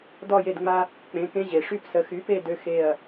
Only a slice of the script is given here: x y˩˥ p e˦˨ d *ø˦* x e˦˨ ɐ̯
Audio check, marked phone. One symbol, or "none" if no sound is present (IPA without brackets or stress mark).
ø˦